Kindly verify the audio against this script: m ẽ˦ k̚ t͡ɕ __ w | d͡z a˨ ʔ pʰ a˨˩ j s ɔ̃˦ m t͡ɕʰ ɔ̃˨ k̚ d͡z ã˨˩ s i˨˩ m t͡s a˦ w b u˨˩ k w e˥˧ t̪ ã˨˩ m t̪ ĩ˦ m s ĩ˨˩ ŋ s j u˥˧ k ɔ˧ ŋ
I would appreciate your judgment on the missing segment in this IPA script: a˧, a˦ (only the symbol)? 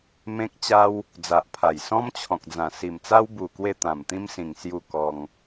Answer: a˦